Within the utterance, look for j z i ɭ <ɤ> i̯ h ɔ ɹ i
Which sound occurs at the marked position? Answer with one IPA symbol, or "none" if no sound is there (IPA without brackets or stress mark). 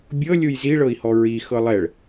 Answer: ɤ